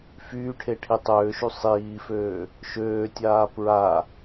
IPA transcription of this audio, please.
f yː ʈʰ e ʈʰ i tˤ øː ʃ y sˤ iː f øː | ʃ øː tʲ aː p ɹ a

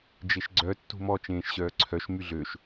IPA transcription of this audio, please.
d͡ʒ e ʃ ɡ͡ǀ œ tː ṳ m ɔ t͡ʃ ẽː ʃ ɕ œː ǀʰ œ ʃ m y ɮ ø ʃ

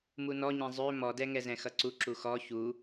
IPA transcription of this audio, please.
m u n ɔ ɲ ɛ̃ zˤ ø m ɔ d ɛ ŋ ɛ z ɛ̃ x ʌ ǀ u ǁ u x ɔ ç u

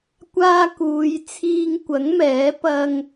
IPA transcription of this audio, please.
kʷ aː˧ k uː˨˧ j t͡sʰ iː˧ ŋ kʷ ɐ˨˥ ŋ m ɛː˨˥ p ɐ˧ ŋ

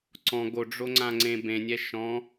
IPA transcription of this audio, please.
ǀ ɔ̃ ɡ o ɖ͡ʐ o ŋ͡ǀ ã ŋ͡ǀ ẽ b ẽ nʲ ɛ ʃ ɔ̃

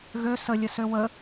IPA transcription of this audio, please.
ɣ ø s ə lʲ ə s ø w ə

